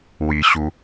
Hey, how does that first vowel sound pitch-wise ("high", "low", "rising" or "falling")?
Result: low